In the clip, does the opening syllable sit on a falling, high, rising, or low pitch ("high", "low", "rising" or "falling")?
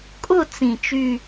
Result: falling